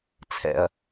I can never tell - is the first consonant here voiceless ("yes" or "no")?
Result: yes